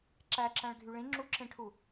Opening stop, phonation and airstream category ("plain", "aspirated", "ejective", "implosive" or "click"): click